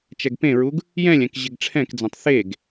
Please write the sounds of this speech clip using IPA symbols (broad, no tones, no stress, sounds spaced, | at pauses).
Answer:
t͡ʃ ɛ ɡ p ẽ ɹ u ɡ | j ɛ̃ lʲ ɛ̃ k ʑ ɪ ɡ ʈ͡ʂʰ ɛ̃ k d͡z ɛ̃ tˤ θ e ɡ